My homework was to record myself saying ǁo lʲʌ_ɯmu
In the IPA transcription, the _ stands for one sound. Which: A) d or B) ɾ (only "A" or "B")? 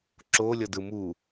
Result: A